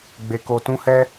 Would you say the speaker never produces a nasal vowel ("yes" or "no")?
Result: no